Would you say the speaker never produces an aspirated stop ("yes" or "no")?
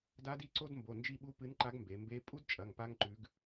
yes